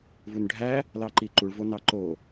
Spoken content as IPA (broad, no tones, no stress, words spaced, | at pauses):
vunɖʱæ | lɑǃiǃuɭ vonɑǃo